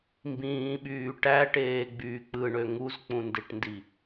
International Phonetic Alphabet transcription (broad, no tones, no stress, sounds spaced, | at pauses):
m b ĩː ɓ yː ʈ æ ʈ eː ɡ͡b yː k͡p ɯ ɳ ø ŋ u z k͡p ũ n d e ʈ n d i